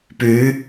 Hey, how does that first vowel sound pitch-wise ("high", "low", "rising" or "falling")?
rising